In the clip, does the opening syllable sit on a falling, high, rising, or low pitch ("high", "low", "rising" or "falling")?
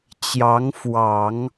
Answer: rising